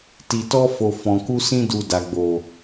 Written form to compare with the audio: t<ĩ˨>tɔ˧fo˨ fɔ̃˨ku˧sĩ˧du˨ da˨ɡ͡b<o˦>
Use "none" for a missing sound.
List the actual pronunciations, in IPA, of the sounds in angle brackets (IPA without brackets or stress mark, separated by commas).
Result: i˨, o˨